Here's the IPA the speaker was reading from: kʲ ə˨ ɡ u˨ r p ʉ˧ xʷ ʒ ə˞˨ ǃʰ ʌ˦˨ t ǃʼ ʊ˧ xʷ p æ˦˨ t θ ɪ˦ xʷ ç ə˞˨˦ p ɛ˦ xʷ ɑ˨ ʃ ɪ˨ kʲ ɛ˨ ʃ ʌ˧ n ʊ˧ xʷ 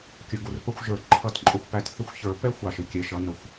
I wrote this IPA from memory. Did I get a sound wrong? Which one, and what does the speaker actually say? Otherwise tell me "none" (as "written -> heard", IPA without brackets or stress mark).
ʉ˧ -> ə˧